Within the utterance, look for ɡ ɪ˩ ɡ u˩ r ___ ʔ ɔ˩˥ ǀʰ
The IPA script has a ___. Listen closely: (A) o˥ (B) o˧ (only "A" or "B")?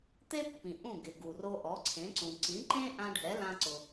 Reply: B